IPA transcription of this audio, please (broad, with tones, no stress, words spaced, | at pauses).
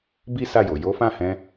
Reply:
bi˦ sa˦˨jo˨ jo˨˦fã˦˨hɛ̃˧